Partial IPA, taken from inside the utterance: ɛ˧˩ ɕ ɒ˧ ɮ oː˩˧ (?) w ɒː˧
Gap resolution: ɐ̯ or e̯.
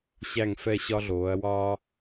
ɐ̯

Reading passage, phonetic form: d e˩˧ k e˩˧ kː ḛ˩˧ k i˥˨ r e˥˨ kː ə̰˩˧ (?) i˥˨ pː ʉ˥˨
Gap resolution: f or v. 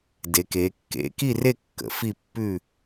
f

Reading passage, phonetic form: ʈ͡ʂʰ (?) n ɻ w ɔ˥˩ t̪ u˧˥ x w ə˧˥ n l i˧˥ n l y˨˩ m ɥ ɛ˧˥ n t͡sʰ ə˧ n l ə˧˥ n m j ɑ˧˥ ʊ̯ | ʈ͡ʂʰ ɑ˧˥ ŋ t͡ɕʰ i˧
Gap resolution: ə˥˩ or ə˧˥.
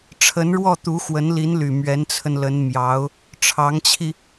ə˧˥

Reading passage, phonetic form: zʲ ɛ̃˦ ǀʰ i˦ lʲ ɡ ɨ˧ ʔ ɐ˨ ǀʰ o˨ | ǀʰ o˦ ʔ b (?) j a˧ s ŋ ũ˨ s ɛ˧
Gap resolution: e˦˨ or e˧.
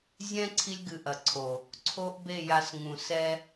e˦˨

